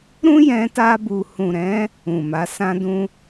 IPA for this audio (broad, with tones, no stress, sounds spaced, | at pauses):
ɾ ũ˦ j ɛ̃˧ t a˧ b u˨ h ũ˨ ɾ ɛ̃˨˦ | ũ˨ m a˨˦ s ã˦ d ũ˦